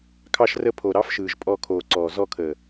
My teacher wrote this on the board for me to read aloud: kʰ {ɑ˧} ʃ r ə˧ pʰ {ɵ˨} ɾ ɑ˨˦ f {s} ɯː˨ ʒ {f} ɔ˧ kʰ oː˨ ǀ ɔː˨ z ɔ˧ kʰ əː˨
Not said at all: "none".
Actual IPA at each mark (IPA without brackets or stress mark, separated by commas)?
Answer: ɑ˧, o˨, ʃ, pʼ